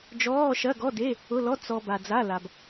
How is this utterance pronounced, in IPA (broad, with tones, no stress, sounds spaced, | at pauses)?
d͡ʒ ɔː˧˥˧ ʃ ɐ˧˥˧ ɡ ɔ˧˥˧ d e˧˥˧ | ʊ˧˥˧ l ɔ˧˥˧ t͡s ɔ˨ b a˨ d͡z a˧˥˧ l a˨ b